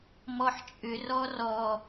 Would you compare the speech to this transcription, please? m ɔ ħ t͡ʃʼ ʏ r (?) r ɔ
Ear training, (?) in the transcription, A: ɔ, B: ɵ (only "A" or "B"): A